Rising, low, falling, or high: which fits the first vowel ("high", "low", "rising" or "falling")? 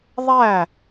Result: falling